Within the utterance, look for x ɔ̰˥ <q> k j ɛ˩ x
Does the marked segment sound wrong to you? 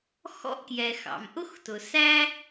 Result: yes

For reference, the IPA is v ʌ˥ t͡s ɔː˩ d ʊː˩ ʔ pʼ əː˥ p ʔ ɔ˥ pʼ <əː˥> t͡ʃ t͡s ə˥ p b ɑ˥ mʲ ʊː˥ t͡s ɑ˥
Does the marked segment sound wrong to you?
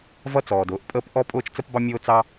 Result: yes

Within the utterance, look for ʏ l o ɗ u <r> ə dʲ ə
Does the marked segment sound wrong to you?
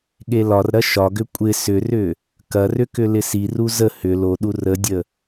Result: no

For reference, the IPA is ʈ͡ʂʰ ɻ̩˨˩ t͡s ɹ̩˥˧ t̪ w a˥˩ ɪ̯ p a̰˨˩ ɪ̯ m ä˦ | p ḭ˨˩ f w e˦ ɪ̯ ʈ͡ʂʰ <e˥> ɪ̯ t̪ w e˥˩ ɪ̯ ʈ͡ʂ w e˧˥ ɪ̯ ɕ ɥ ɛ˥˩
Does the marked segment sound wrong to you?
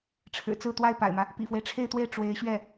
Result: yes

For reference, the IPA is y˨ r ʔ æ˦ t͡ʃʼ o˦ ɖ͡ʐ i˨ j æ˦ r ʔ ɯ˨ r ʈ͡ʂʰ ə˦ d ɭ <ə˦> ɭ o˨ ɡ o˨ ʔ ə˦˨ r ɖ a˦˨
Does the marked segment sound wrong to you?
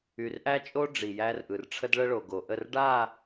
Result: no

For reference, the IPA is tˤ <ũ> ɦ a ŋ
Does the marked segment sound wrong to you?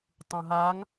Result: no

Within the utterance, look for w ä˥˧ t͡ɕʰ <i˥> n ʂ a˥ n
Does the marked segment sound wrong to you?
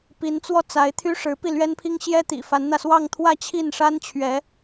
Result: yes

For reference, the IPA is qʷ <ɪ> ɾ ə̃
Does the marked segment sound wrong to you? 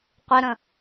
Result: no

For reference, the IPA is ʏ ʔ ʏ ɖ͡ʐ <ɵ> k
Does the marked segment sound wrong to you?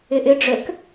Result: no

